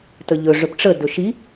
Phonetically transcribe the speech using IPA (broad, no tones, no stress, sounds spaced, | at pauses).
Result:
t ə ʎ ɵ ʐ ɵ p ʈ͡ʂ ə d ɵ ʃ i